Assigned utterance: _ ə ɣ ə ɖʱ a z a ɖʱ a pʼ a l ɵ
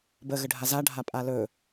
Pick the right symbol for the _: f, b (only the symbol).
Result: b